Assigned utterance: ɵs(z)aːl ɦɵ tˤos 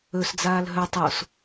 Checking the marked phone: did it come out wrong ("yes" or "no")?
yes